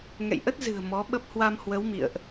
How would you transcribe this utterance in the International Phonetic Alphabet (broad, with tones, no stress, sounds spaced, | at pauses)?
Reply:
ŋ ɛ̰˧˨ j ʔ ə˦˥ t̚ z ɨ̤˨˩ ə̯ m ɔ˨˦ ɓ ə˦˥ p̚ h w a˧ m h w ə˨˦ w m ḭ˧˨ ə̯ ʔ